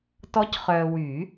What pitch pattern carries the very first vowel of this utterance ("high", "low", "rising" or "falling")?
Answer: rising